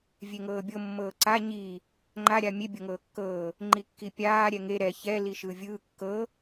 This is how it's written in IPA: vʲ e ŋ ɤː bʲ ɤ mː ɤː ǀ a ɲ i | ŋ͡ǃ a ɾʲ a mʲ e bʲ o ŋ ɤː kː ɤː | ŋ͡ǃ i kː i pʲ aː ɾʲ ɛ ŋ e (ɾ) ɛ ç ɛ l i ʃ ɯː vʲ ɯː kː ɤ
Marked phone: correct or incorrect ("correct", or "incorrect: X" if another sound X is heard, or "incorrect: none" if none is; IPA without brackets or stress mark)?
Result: correct